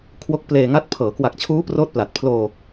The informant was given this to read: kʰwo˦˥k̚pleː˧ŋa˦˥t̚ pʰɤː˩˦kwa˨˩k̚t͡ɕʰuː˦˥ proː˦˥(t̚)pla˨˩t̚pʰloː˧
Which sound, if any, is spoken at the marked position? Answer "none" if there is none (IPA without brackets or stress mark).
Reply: t̚